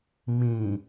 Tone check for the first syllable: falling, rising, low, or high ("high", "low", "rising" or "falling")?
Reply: low